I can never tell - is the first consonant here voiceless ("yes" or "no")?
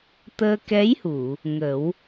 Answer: yes